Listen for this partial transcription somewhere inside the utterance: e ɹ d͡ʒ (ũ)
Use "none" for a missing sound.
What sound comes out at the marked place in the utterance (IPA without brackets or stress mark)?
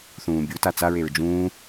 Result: ũː